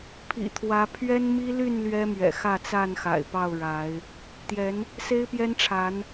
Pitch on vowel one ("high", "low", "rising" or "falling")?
low